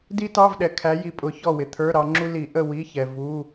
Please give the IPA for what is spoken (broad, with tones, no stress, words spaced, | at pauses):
di˥tɑ˧˥˧vɗɛ˨ kʰæ˨˦ji˨pʼʊ˨˩˦ çɔ˦˨wɪ˨ t̪ʰə˞˧˥˧ɾɑ˨˦ŋ͡ǁu˥ li˨˩˦ʔə˦˨ wi˧˥˧çɛ˨ vu˧˥˧